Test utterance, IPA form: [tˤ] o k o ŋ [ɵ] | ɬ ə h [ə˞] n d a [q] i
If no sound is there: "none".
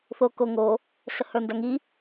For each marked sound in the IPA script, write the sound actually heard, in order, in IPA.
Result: θ, o, ə˞, ŋ

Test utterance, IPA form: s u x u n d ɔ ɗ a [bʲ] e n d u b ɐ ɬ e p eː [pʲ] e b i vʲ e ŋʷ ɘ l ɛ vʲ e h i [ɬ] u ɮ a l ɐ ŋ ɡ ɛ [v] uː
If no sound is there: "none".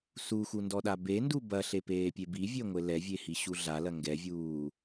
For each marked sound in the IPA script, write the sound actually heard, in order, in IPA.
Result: b, pʲ, ɕ, vʲ

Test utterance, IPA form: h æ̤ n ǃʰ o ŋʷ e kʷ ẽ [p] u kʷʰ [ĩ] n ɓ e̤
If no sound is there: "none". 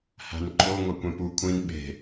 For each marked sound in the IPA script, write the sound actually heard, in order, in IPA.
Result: p, ĩ

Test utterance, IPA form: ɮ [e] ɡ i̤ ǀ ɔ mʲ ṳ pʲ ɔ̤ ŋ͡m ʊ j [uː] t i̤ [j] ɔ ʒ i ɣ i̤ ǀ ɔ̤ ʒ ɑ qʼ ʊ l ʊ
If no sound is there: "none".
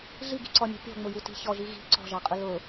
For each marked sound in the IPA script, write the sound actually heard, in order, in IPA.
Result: i, u, ç

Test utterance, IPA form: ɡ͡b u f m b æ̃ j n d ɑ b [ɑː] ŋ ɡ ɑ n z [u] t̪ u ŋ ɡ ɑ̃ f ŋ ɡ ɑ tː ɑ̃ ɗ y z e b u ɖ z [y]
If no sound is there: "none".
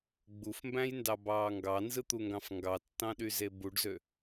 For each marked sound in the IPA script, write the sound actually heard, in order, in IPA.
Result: ɑː, ɯ, ø

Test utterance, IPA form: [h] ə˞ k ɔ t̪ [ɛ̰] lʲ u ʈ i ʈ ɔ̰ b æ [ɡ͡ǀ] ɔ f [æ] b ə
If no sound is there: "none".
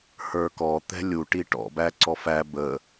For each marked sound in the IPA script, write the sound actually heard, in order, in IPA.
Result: h, ɛ̤, ǀ, æ

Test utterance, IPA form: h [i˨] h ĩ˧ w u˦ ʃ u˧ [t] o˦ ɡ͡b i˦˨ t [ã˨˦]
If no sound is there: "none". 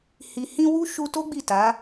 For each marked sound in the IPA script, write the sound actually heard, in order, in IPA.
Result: i˨, t, a˨˦

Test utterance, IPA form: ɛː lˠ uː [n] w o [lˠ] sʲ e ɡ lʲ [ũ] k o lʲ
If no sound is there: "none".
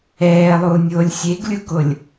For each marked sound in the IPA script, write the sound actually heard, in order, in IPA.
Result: nʲ, lʲ, u

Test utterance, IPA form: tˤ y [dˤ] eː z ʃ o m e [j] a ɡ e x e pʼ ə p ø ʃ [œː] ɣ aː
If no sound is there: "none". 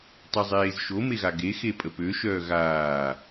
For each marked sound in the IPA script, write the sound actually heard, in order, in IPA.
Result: zˤ, ɣ, œː

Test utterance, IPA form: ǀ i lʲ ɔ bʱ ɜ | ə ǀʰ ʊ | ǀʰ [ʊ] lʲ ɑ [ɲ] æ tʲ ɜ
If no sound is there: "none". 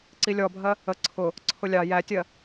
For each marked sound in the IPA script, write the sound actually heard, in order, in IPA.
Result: ʊ, j

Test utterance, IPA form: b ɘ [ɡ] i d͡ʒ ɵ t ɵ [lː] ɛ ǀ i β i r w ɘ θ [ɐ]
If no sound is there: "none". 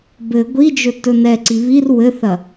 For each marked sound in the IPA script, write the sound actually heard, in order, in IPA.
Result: ɡʷ, n, ɐ

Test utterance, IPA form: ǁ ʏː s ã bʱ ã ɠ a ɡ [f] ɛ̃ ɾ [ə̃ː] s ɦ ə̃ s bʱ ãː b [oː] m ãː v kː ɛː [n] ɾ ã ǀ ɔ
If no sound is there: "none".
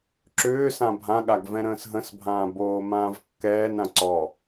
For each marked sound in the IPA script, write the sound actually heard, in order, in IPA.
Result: v, ə̃ː, oː, n

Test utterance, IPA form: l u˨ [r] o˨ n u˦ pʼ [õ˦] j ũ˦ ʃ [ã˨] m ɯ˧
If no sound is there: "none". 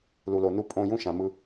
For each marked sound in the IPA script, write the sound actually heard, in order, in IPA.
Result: l, õ˦˨, ã˨

